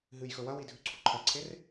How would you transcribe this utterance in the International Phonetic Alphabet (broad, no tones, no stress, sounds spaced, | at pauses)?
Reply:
ɦ ɨ j x ɵ w ɐ w i dʱ ʉ ǀʰ u ǃʰ ɐ ǀʰ e r